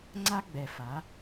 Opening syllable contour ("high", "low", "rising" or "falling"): high